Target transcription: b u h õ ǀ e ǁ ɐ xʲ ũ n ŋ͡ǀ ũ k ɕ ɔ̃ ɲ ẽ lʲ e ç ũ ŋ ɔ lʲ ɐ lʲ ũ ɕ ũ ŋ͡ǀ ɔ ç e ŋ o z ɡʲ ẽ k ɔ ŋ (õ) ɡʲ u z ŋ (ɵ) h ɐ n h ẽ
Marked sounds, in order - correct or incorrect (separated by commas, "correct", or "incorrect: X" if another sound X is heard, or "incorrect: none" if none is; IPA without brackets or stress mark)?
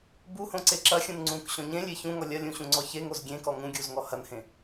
incorrect: ũ, incorrect: ɔ